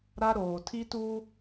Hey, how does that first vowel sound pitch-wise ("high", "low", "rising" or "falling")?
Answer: high